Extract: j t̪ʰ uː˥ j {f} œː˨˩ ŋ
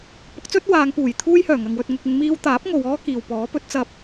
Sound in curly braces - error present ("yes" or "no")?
yes